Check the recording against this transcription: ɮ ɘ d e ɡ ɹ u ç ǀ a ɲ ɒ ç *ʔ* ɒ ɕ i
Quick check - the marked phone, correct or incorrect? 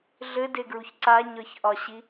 correct